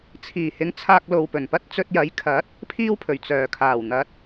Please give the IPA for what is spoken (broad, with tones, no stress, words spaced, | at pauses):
t͡sʰiː˨˩hɪ˨˥ŋ t͡sʰaː˧k̚ lo˨wpɵ˨˩npɐ˥t̚ t͡sɵ˧t̚jɐ˨˥jkʰɐ˨˥t̚ | pʰiː˥wpʰɵ˨˩ɥ t͡sœː˨˩kʰaː˨˩wn̪ɐ˨˥t̚